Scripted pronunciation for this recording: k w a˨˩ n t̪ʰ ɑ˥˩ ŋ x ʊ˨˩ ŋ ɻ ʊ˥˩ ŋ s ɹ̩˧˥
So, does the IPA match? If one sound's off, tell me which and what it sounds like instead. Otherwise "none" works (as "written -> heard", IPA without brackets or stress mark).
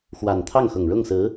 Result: k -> x